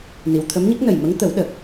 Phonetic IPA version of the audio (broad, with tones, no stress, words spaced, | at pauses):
ni˨˩˨wt̪ʰə˧˥mɲə˦˥k̚ nə˨˩jmə˧˥ŋt̪ə˨˩˦w ɗə˨˩k̚